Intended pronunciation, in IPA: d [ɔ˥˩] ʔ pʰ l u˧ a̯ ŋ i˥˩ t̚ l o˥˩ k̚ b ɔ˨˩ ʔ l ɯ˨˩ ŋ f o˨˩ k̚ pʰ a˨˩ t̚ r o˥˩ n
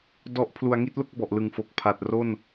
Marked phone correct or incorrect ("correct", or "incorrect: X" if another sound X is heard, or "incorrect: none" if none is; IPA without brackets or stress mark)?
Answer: incorrect: ɔ˦˥